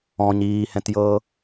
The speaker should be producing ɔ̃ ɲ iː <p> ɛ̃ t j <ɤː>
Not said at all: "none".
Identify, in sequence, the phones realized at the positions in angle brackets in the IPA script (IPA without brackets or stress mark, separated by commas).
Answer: h, ɤː